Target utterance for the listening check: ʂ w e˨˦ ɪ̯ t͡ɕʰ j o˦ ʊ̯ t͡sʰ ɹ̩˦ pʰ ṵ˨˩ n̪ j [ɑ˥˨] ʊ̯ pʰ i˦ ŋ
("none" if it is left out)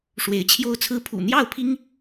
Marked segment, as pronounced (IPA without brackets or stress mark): ɑ˥˨